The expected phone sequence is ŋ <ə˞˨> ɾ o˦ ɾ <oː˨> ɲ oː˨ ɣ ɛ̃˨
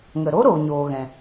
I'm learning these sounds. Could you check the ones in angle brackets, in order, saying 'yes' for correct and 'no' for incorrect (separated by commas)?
no, yes